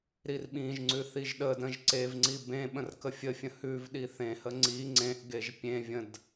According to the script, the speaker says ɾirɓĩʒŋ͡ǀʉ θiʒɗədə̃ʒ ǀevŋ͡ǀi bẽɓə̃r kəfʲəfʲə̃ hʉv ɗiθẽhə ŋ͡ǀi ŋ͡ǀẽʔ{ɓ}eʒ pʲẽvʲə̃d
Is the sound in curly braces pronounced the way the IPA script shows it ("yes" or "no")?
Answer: no